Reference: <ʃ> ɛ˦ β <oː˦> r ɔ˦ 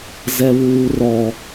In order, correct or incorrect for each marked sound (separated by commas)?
incorrect, incorrect